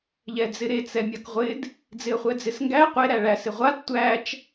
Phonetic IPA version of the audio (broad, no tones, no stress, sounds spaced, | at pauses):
ʎ ɛ d͡z ɪ ɾ e t͡s ɛ mʲ a k ʁʷ ɪ d | d͡z ɪ ə̯ χʷ ɛ d͡z ɪ s ŋ ɡ æ qʷ e ɾ æ ɭ æ s ɪ ʁʷ a d tʷ æ t͡ʃ